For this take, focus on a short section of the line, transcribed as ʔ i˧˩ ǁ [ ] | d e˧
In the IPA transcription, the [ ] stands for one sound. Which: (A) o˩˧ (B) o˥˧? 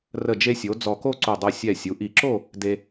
B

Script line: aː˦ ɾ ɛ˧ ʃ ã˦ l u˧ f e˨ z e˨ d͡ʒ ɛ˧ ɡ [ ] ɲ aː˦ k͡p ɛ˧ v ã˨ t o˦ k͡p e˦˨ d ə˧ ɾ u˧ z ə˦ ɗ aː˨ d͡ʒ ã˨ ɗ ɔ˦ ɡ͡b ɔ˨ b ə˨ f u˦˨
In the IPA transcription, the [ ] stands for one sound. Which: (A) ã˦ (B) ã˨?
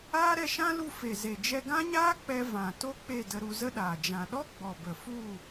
A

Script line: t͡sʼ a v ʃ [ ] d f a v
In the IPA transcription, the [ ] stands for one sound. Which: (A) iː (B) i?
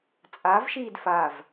A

